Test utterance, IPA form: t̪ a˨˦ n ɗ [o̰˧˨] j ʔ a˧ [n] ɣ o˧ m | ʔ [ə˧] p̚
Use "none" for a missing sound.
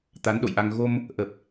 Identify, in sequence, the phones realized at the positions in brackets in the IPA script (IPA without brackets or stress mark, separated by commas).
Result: o̰˧˨, ŋ, ə˨˩